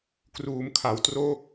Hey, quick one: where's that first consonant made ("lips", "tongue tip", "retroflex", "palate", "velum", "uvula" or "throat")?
velum